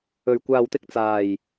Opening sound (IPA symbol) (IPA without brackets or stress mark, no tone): ɵ